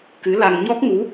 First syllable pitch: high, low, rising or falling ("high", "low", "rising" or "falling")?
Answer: rising